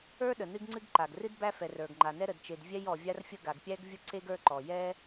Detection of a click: present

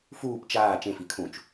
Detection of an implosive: absent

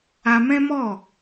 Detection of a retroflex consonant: absent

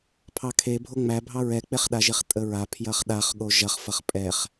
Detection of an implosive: present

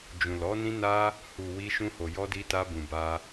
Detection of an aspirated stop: absent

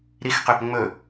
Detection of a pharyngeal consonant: absent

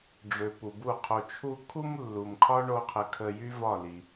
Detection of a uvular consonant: present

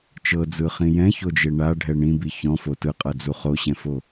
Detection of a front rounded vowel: absent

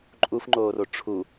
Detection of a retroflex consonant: present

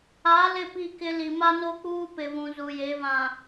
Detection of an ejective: absent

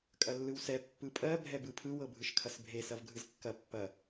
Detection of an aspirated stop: present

